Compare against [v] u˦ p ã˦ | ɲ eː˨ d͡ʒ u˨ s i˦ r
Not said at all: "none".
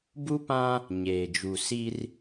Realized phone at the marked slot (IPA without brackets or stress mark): b